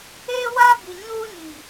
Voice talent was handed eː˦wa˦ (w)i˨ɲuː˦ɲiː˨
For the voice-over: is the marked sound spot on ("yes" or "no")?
no